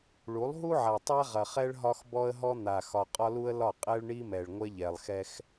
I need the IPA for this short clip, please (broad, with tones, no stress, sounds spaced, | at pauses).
ɭ u˨˦ lˠ ɦ u˦ ʕ a˨ tˤ a˦ ʁ ɐ˨ χ ɛ˦ ɭ ɦ ɒ˦ x b ɔ˦ ə̯ ɦ ɔ˦ n̪ a˨ x ɒ˨ qʼ ɒ˦ l u˦ ə̯ l ɒ˦˨ qʼ ɛ˦ ɭ ɳ i˦ m ɛ˨ ɭ ŋʷ ɛ˦ ʎ ɛ˨ lˠ x ɛ˦ x